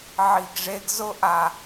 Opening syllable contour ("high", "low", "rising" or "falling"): low